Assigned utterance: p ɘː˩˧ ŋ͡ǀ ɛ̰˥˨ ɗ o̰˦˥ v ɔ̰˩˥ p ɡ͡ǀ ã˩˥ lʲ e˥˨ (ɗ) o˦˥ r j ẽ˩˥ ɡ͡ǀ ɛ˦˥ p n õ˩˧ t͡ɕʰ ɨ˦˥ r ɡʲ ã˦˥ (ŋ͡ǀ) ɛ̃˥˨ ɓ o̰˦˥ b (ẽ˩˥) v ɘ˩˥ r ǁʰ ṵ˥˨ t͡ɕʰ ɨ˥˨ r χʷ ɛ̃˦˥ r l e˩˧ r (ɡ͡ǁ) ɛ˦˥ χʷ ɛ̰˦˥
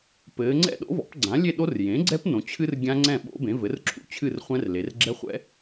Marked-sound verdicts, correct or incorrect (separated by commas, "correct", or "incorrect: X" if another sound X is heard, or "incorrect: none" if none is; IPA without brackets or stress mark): correct, correct, correct, correct